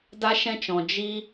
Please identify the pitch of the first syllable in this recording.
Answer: high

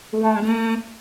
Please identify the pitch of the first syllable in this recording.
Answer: high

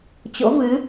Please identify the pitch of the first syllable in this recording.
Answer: rising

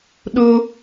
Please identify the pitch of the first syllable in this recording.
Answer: high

